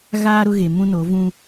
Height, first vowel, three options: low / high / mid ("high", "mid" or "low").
low